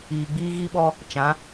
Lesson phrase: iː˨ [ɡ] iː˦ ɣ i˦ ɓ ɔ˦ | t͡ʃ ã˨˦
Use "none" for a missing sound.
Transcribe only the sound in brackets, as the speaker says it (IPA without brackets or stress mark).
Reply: ɡ͡b